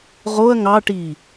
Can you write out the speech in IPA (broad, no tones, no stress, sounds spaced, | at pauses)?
ʁ o ɐ̯ ŋ ɑ ʈ iː